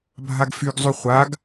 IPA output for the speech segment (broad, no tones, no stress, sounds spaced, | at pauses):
bʱ a ɡ f y ɡ zˤ y χʷ a ɡ